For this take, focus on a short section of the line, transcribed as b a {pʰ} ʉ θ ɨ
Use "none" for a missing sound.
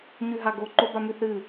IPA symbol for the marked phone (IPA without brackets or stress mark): m